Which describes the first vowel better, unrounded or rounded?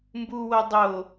rounded